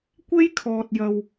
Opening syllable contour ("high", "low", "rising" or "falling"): high